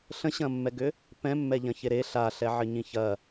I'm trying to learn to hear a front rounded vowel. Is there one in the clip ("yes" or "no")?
yes